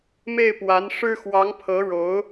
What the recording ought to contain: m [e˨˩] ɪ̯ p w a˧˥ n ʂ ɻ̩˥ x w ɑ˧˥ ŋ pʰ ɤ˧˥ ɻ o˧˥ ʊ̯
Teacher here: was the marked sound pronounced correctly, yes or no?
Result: no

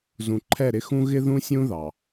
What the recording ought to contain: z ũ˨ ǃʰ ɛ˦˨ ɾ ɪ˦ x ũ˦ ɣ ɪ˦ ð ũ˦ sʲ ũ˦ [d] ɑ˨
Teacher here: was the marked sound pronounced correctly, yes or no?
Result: no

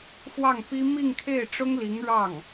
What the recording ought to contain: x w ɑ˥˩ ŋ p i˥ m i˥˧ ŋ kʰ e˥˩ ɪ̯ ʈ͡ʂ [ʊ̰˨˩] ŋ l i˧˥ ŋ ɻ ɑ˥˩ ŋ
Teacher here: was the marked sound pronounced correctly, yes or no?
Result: no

